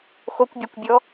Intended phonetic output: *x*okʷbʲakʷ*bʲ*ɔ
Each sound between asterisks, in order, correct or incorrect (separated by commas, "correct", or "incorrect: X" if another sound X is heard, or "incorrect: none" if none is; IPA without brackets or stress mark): correct, correct